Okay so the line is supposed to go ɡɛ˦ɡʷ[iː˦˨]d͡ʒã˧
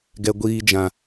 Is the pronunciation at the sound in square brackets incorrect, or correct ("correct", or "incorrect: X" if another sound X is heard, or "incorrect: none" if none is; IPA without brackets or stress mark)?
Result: incorrect: iː˦